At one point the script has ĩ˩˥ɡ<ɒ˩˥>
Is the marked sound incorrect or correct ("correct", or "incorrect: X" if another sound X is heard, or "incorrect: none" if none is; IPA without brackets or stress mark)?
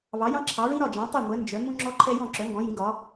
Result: correct